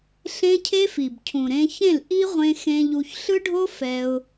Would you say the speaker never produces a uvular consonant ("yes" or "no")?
no